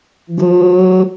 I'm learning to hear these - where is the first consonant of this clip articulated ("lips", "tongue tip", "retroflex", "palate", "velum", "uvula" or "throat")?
velum